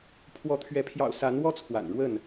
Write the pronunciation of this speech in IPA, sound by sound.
pʰwɔ˨˦t̪ʰɥɛ˨˦ pʰjɑ̰˨˩ʊ̯ sa˨˦nwɔ˦ t͡sʰwa̰˨˩nɻwə˥˨n

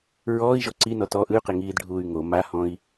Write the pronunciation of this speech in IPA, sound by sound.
ɹɔːi̯ʒɔ ǀinɔ tɔ ʔɯy̯qeŋiːdɖʱuːy̯ ŋo mahɔ̃i̯

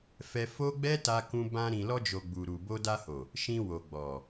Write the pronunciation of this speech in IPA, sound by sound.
fɛ˧fo˦ɡ͡bɛ˦ ta˧kũ˧ bã˧ ɾĩ˨lɔ˧d͡ʒo˨ ɡ͡bu˨ɾu˨bo˧ da˧ho˨ | ʃĩ˧wo˨ ɡ͡bɔ˨

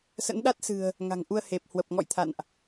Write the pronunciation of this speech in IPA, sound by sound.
sə̰˧˥nɗa˦˥t̚sɨ̤˨˩ə̯ | ŋa̤˨˩ŋʔu˧ə̯ he˨˩p̚ hwə˨˩p̚ ŋɔ̰˧˨j t̪ʰa̰˧˨nʔ

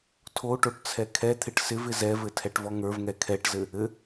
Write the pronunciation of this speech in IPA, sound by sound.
tʰoʈoʈ t͡sʰɛkʰɛt̪ʰɪʈ sɪvɪ zɛvɘ tʰɛʈvɔŋə˞vŋɛ kʰɛʈzɘ | ɘ

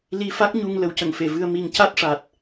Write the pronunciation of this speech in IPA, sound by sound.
li˧fa˦˥k̚ɲu˧ŋ lə˨˩˦wcə˨˩˨ŋfe˨˩˨ vɨ˧ə̯ mi˨˩ŋca˦˥t̚ʂa˨˩t̚

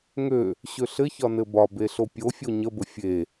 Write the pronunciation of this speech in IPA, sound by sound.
ŋø | ɕøɬɘçɒ nɘbɒbe ɬopʲofʲo ɲəbə fʲe

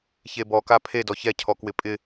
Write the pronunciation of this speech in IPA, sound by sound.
çebɔ kapʰe dɔçɛ cʰɔkwɪpʼɪ

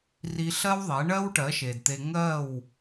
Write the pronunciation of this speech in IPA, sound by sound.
ri˧ɬɜ˦wðˤe˨˦ ɳɜ˦wʈɜ˨˦ʃe˨dt̪e˧ ŋɜ˦˨w

